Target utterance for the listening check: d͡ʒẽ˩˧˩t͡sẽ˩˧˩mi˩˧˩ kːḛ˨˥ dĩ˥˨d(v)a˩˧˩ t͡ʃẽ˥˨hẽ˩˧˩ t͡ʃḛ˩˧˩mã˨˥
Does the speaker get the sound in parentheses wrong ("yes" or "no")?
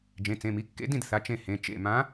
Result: yes